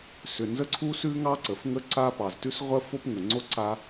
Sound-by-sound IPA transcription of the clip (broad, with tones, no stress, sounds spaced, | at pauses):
s ʏ˩ n z ə˥ ǀʰ u˥ s ʉ˥ ŋ ɑ˥ ǀ ə˩ f ŋ ə˥ ǀ a˥ p ɑ˩ z t ʉ˥ s ʁʷ ə˥ f o˥ p ŋ ə˩ ŋ͡ǀ o˥ ǀ a˥